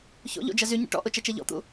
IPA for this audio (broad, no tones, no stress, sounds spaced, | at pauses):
ç o̰ ʎ o̰ d͡ʒ ɐ z y ɲ ə̰ ʈ ɔ̰ ʔ ʊ t͡ʃ ɐ t͡ʃ ɛ ʎ ɔ̰ t̪ ṵ